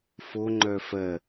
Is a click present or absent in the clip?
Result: present